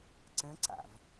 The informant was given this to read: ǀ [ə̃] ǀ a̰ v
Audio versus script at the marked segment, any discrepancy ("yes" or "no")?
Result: no